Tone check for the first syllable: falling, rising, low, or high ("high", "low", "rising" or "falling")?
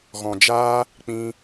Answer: low